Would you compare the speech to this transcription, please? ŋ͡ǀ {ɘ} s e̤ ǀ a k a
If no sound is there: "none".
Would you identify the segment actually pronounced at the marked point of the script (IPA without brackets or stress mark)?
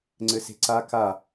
ɘ